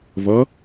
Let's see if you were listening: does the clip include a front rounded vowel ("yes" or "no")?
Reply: no